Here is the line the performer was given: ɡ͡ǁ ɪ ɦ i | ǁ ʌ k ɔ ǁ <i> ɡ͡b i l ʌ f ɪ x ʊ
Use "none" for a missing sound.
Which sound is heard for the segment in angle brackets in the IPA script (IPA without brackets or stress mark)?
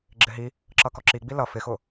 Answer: i